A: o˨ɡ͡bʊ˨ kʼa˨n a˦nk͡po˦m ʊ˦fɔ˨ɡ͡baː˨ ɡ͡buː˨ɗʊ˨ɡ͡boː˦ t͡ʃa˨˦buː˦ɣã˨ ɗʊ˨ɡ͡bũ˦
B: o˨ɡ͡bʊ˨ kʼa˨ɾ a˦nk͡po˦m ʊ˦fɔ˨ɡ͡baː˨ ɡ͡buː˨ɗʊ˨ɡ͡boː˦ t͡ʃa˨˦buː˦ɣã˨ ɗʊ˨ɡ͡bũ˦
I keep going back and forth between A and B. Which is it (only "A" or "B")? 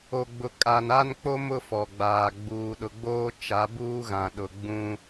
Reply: A